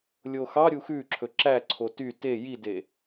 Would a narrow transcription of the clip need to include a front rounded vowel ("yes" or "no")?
yes